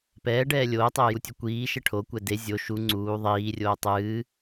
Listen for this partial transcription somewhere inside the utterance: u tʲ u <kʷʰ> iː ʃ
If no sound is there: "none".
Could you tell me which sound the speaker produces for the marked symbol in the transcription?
kʷ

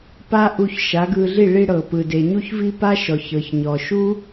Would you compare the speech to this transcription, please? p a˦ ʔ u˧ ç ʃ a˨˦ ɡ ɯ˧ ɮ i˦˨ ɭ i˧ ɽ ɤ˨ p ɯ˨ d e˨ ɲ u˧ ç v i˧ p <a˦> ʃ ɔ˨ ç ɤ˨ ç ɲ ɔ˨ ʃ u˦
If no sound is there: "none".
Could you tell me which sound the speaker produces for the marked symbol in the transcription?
a˦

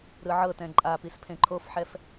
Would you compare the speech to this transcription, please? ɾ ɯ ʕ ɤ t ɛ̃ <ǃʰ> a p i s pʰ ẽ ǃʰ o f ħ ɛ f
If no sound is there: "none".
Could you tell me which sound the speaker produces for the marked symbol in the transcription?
ǃʼ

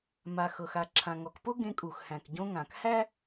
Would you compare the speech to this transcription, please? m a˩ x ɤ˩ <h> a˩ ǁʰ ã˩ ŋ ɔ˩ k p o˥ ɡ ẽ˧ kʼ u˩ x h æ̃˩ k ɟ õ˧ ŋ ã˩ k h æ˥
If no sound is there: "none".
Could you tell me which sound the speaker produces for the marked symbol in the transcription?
x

